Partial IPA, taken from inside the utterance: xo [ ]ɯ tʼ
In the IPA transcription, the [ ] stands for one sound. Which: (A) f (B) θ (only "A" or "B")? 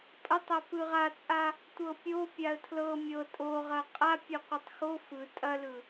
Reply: A